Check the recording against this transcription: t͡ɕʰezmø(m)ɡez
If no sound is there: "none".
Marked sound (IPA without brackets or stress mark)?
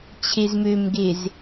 m